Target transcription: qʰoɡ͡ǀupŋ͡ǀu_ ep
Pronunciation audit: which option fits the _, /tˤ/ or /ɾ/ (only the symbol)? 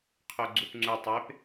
tˤ